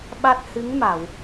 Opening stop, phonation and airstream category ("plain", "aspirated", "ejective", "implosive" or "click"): implosive